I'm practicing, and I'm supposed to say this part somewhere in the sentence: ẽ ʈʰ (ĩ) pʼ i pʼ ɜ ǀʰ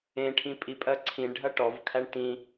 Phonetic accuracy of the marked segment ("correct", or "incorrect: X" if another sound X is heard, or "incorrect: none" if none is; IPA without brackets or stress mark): correct